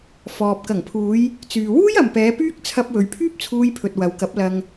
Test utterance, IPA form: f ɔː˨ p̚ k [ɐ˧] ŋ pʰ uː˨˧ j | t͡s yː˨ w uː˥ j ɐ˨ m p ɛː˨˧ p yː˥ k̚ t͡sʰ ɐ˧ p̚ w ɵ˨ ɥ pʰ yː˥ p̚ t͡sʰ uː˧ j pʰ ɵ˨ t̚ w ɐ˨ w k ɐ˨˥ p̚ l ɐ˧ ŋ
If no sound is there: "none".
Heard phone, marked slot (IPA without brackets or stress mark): ɐ˨˩